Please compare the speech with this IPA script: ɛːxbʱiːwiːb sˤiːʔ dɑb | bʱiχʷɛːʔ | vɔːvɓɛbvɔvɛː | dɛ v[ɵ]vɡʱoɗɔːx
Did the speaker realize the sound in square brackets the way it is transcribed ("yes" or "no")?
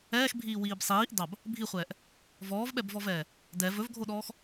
yes